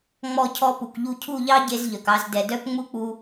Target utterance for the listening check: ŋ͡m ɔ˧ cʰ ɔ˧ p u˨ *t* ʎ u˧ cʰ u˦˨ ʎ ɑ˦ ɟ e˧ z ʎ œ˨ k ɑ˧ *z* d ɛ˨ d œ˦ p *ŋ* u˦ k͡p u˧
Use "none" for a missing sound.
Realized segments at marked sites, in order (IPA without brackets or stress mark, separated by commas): k, z, ŋ͡m